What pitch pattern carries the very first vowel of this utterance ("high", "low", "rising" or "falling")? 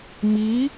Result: rising